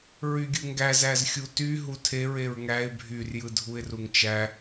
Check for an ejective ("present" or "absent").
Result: absent